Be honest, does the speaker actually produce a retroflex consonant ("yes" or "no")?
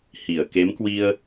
no